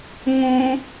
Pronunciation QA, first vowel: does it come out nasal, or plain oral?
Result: nasal